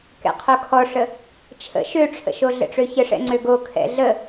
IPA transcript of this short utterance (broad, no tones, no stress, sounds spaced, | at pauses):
k ɛ̰ qʰ o kʰ ɔ ʂ ə | t͡ʃʰ ə̰ ʃ ø ʈ͡ʂʰ ə̰ ʃ o ɮ ə̰ ʈ͡ʂ ø ç ə ʂ ɛ̰ ŋ͡ǀ ø ɡ o kʰ ɛ̰ ɮ ə